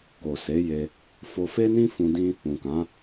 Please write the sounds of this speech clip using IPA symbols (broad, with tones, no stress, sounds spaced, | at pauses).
k o˨ s e˨˦ j e˧ | f o˧ f e˦ n ĩ˦ f ũ˧ d ĩ˦ | ũ˨ k ã˨˦